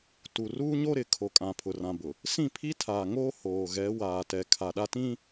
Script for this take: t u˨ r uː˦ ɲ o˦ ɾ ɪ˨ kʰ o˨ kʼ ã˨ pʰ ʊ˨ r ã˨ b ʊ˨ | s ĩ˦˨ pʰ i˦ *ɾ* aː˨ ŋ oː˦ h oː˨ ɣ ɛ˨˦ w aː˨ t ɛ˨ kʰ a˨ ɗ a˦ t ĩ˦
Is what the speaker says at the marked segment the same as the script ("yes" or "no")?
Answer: no